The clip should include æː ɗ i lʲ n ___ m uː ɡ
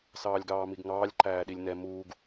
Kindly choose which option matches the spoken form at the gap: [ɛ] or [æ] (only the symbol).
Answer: ɛ